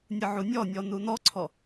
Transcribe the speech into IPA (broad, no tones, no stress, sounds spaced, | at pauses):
nʲ ɯ ʕ u nʲ ɔ nʲ ɔ n u n ɔ ǀʰ ɔ